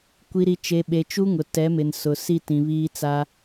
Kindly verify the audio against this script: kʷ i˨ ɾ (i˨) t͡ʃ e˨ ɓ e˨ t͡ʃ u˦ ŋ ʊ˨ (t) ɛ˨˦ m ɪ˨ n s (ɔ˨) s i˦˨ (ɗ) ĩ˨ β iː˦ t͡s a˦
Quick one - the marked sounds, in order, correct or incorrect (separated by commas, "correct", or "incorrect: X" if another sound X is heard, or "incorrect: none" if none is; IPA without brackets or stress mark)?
correct, correct, incorrect: ʊ˨, incorrect: t